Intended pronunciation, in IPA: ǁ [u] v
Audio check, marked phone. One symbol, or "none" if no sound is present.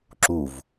u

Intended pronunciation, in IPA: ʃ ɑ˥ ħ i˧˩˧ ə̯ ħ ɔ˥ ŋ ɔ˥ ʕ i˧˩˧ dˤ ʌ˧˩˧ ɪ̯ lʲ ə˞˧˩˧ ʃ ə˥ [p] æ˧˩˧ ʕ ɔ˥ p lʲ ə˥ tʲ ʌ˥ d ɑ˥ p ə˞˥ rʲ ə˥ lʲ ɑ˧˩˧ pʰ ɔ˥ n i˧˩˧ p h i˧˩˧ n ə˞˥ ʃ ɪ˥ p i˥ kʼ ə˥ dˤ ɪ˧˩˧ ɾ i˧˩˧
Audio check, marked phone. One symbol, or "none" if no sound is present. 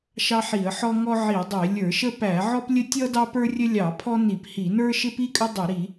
p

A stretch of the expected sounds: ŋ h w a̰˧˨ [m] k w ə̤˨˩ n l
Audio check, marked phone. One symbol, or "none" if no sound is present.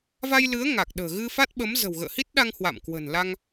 m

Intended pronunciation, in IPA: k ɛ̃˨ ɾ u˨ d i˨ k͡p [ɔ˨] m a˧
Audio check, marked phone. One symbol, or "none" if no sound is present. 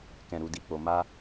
o˨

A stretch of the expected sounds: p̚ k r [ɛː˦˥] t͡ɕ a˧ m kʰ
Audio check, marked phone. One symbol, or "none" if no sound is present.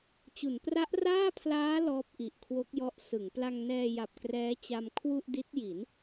ɛː˦˥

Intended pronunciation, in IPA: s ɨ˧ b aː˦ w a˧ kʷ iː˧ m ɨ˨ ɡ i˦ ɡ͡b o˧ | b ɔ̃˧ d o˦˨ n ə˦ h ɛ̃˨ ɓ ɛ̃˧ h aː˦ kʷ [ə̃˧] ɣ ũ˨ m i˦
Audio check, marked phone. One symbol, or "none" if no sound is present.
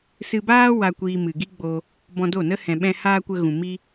ə˧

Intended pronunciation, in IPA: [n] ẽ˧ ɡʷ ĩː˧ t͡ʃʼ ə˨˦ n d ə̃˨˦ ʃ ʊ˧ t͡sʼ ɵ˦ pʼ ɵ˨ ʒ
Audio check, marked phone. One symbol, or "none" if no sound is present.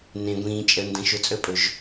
n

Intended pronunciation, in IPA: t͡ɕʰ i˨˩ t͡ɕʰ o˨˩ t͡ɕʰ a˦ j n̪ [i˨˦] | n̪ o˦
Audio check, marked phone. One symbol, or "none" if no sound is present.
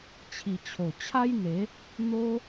e˨˦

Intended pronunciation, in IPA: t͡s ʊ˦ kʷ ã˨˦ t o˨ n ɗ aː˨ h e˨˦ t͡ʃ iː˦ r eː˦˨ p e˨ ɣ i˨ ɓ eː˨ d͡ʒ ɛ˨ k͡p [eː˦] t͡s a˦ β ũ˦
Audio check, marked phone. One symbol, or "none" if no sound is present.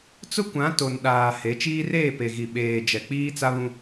iː˦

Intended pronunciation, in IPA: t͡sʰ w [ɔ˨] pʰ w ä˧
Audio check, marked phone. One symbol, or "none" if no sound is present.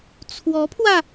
ɔ˧˥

